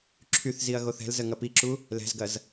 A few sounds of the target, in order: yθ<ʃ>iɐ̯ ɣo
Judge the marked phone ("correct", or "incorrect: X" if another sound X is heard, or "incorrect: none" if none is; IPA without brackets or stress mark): incorrect: z